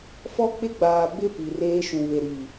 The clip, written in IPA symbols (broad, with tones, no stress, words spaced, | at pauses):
fɔ˦k͡pɪ˦ɡ͡baː˨ bɪ˦ pi˨reː˦ ʃũ˨βe˨ɾiː˨